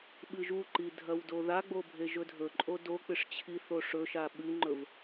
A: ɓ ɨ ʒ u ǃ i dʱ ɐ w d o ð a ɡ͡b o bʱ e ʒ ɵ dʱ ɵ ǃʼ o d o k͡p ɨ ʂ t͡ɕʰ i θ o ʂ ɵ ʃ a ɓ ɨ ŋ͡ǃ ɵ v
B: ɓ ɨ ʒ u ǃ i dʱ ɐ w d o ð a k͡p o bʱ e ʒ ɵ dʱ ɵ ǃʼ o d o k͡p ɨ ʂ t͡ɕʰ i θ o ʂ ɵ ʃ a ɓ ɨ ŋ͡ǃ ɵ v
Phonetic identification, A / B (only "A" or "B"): A